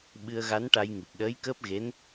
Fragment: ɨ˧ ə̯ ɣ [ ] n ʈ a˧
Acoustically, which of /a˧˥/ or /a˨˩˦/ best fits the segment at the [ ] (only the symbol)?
a˧˥